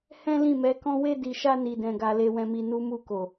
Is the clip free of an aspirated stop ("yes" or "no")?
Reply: yes